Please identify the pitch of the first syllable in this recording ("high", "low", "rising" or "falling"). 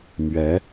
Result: rising